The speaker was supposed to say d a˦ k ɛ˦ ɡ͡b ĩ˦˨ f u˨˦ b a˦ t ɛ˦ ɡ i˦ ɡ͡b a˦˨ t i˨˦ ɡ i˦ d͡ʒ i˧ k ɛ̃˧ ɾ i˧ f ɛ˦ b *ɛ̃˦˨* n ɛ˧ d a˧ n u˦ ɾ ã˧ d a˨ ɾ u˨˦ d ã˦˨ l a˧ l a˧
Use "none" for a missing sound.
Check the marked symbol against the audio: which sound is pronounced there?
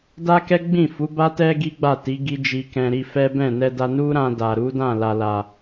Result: ɛ̃˦˨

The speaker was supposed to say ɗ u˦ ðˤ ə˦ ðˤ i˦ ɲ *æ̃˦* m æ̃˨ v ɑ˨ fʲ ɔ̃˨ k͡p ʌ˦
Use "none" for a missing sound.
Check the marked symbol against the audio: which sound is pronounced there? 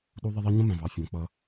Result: ə̃˦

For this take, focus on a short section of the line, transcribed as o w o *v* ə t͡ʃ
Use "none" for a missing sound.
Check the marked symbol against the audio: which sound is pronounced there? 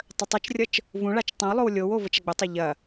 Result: v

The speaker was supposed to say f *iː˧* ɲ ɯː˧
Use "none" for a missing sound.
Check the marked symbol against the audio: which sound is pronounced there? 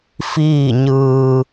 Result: iː˥˨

